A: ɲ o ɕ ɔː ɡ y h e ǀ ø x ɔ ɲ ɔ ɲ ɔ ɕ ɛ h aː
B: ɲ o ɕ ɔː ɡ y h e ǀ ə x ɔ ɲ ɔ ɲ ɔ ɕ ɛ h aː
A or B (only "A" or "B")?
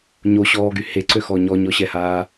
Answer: A